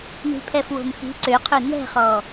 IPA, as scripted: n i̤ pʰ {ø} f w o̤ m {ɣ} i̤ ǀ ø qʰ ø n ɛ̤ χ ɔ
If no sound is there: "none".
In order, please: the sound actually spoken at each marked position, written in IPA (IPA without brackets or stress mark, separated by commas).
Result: ɛ, x